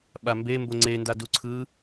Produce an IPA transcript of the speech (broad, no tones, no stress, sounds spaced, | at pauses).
ɓ a m b e m b o ŋ͡ǀ e n d a d u ǀʰ ɯ